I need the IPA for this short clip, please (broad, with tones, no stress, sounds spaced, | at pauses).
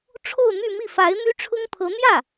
ʈ͡ʂʰ o˥˧ ʊ̯ n̪ y˥˧ m i˥˩ f a˧˥ ɪ̯ n̪ y˥ ʈ͡ʂʰ ʊ˥ ŋ t̪ʰ ɤ˧˥ n̪ j ä˥˩